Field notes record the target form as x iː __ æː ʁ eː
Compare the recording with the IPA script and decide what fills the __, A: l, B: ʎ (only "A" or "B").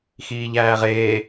B